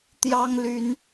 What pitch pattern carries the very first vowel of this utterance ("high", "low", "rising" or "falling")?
high